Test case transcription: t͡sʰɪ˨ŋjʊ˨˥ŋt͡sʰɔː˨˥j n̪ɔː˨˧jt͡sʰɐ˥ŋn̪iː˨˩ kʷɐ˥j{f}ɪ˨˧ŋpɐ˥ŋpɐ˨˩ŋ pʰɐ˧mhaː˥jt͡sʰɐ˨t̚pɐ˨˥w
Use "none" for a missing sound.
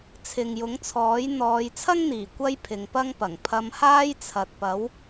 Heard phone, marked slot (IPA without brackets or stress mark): pʰ